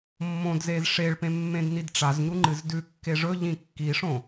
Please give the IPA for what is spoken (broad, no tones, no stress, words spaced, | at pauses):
mːõdzez ʂeɭpẽ mːẽdnidʈ͡ʂazɲu ŋ͡ǃɨzdʉkːe ʐɵʎĩ kːiʂõ